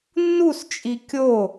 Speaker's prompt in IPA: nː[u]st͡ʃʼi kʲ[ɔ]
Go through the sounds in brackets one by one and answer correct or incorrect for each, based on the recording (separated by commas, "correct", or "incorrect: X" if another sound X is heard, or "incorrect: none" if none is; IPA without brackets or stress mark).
correct, incorrect: o